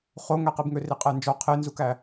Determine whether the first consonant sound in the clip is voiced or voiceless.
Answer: voiceless